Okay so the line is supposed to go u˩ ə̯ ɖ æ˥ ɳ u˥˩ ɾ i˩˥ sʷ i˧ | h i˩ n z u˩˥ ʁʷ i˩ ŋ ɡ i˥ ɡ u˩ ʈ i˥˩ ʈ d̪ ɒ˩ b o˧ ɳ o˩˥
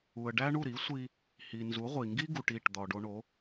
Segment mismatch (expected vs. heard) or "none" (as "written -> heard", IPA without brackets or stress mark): b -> ɖ